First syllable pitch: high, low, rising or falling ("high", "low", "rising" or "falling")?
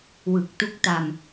low